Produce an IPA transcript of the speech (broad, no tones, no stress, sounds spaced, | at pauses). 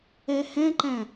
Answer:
ɛ h ɛ̃ ǃ æ̃